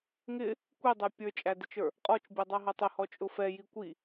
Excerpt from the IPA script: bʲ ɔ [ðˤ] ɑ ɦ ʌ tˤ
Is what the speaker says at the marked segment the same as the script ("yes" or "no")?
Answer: no